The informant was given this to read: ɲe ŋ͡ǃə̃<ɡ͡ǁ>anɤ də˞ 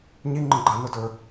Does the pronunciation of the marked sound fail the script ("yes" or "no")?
yes